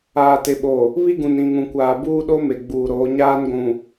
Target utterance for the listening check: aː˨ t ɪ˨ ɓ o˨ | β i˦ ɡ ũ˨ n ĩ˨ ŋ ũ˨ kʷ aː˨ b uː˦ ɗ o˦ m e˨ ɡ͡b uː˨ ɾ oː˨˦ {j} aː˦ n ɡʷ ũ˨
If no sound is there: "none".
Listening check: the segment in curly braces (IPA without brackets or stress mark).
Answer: ɲ